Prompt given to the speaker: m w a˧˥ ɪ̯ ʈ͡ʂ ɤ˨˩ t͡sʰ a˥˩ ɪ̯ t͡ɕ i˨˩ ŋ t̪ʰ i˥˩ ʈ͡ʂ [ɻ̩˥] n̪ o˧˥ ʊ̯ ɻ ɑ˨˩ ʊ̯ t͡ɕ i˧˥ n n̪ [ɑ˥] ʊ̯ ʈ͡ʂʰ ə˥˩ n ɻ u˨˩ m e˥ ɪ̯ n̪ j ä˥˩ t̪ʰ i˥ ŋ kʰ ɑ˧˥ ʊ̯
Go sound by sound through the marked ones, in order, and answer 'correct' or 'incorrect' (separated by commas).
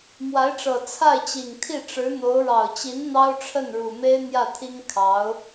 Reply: incorrect, correct